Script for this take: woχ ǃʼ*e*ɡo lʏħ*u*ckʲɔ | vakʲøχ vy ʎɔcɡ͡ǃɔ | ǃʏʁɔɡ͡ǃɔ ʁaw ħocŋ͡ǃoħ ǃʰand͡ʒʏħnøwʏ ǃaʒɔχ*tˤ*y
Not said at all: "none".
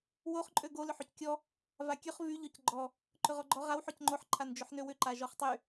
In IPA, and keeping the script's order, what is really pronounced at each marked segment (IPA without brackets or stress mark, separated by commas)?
ø, y, tˤ